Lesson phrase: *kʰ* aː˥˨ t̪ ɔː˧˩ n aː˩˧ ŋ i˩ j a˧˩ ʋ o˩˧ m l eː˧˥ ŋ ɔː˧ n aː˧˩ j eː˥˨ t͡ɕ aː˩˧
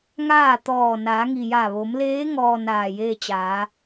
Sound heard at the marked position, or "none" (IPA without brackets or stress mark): ŋ